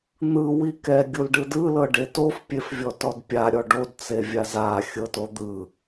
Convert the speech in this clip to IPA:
n̪ ɯ w i k ɛ ɡʲ u l ɖ ɯ d ɯ l ɤ ɖ e t o f pʲ e f vʲ ɔ t ɔ d pʲ a ɾʲ ɔ ɖ o d t͡s e vʲ a z a xʲ ɤ t o d̪ ɯ

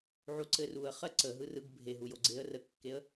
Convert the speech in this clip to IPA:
ʕ u ǀ ɘ r u ə̯ χ ɜ ǀ ə ɦ ɯ r ɯ ɡ bʱ e ɦ u j o ɡ͡ǀ e ə̯ r ə kː e ə̯

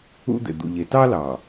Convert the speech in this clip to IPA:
ṵ˦ d̪ ḛ˨ d̪ ṵ˨ ʎ e˨ t ɑ˦ l ɑ˨

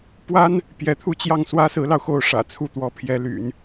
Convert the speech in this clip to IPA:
p w a˥ n | p j ɛ˧˥ t̪ʰ u˥˧ t͡ɕ j ɑ˥˩ ŋ s w ä˥ s ɹ̩˧˥ l ɑ˧ ʊ̯ x o˥˩ ʊ̯ ʂ ä̰˨˩ t͡sʰ u˥˩ t̪ w ɔ˧˥ pʰ j ɛ˧˥ l y̰˨˩˦ n

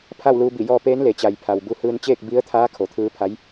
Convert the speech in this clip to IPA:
pʰ a˥˨ w l uː˧ b i˧˩ j ɔː˧ p eː˧˥ n l e˩˧ t͡ɕ a˩ j pʰ a˩ w b u˧ h ɯː˧ n t͡ɕ eː˥˨ k̚ b i˧˥ ə̯ t̪ʰ aː˧˥ kʰ o˩˧ t̪ʰ ɯː˧˥ pʰ a˧˥ j

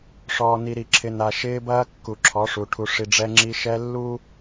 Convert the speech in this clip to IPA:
ʂ ɔː˨ n i˨ ɾ i˨ ǁʰ ɪ˨ n a˨ ʃ ɪː˦ b ɐː˦ kː u˨ ǁʰ ɔ˨˦ ʂ u˨ ʈʰ u˨ ʂ i˨ ɖ͡ʐ ɛ˦ ŋ͡ǁ i˦ ʃ ɛ˦ lː u˦

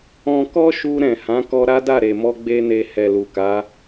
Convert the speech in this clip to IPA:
ɔ̃˧ k ɔ˦ ʃ u˧ ɾ ɛ̃˨ h ã˨˦ k ɔ˧ ɾ a˦ d a˦˨ ɾ e˨ m ɔ˧ ɡ͡b e˦ n e˧ h ɛ˨ l u˨ k a˨˦

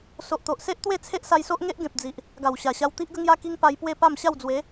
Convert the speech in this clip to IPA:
s o˨ ʔ t̪ o˨ ʔ s e˦ ʔ t̪ w e˥˧ t͡sʰ e˦ ʔ s a˧ j s o˦ ʔ ŋ e˦ ʔ ɡ ẽ˨ p̚ d͡z i˨ ʔ | ɡ a˨˩ w ɕ a˨˩ ɕ a˧ w t̪ i˦ ʔ ɡ ə˦ ŋ j a˦ k i˦ ŋ p a˧ j p w e˥˧ p a˥˧ m ɕ a˥˧ w d͡z w e˨˦

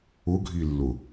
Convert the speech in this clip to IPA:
ʊ ɡʱ i lː ʊ

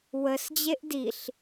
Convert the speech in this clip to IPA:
w ə s d͡ʑ e ʔ d i ɬ

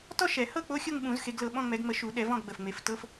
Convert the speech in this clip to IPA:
t ɔ˥˧ ʃ ɛ˨˩˦ h ɤ˥˧ k͡p o˧˥˧ xʲ o˥˧ ŋ ɓ ũ˨˩˦ z x e˨˦ ɡ l ɤ˨˦ ɓ ɔ̃˧˥˧ ŋ͡m ɛ˨˦ ɡ ŋ͡m ə˨˦ ʃ u˨˩˦ ɗ ɛ˨˩˦ v ɔ̃˥˧ ɡ ɡ͡b ə˨˩ f ŋ͡m e˨˩˦ f t ɤ˧˥˧ f

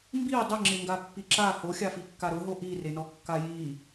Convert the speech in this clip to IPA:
m b i dˤ ɪ ŋ͡ǁ ɪ ŋ ɡ a pː i ǁ a h o xʲ a f i kː a ɾ ʊ ɦ o ʔ i r e n ɔ kː a j i

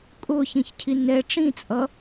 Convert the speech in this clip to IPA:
kʼ ʊː ç ĩ ç cʰ i n ɛ ʈ͡ʂ ĩ t͡sʼ ʌ

